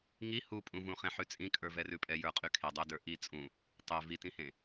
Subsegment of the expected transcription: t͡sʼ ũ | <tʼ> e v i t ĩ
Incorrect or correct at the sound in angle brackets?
incorrect: tˤ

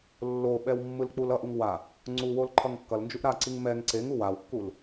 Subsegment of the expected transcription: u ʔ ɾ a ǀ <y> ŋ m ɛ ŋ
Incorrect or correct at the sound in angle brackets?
incorrect: i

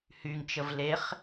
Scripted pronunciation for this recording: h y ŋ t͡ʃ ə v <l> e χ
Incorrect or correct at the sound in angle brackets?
correct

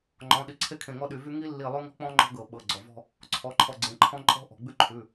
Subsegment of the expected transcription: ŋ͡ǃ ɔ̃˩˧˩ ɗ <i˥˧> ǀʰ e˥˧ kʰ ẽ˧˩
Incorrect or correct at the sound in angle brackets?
incorrect: i˧˩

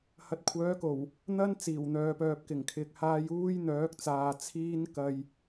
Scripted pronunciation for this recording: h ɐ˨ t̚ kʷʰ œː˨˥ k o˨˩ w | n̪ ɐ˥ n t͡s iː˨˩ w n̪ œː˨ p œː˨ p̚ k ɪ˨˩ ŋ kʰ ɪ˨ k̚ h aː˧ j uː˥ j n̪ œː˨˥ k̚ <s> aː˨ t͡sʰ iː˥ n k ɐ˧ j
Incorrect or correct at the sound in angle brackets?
incorrect: t͡s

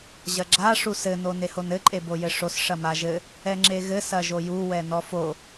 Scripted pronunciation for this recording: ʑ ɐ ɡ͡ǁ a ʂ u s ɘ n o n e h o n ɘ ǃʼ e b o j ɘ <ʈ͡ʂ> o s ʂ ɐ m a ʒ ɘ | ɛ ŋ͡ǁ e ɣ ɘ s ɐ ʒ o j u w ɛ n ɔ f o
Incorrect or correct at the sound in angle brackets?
incorrect: ʂ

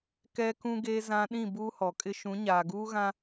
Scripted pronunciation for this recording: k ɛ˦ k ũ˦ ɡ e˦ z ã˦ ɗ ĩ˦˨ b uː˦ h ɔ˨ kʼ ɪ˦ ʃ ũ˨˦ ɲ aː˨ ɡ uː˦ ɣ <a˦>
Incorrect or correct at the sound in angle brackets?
incorrect: ã˦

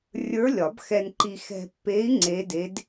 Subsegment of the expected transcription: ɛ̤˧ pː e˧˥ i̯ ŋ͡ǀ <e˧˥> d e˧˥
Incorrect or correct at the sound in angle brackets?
correct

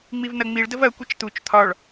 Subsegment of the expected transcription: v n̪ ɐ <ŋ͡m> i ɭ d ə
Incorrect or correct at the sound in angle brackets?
correct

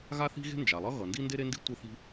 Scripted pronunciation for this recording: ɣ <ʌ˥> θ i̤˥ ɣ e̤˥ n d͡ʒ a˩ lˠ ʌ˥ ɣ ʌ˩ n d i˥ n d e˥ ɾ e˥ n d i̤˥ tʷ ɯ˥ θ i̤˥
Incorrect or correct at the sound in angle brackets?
incorrect: a˥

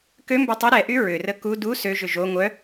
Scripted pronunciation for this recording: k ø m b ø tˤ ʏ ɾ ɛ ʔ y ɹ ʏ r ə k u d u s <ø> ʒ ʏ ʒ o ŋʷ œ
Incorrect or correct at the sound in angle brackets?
correct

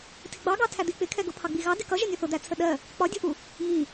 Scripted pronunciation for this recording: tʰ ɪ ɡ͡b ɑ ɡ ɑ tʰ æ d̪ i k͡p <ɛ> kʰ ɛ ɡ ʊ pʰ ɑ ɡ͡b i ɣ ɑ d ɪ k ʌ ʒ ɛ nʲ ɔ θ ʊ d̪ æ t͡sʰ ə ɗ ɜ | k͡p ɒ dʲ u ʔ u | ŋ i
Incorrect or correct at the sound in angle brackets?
incorrect: ɪ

